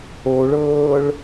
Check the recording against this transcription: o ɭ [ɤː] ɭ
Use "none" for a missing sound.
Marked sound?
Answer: ɤː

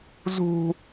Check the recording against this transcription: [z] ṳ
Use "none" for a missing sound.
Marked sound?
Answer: z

